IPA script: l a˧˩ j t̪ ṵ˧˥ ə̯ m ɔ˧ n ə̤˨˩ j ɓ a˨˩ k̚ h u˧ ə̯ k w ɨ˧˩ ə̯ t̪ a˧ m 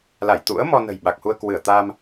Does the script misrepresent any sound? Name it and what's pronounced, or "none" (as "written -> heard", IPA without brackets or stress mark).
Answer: none